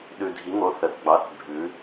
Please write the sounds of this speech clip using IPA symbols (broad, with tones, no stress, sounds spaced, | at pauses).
ɗ ʉ˨˩ dʱ i˩˥ ŋ o˩˥ θ ə˩˧ θ ɡ͡b ɑ˩˥ θ bʱ ʉ˩˧